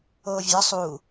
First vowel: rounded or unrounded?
rounded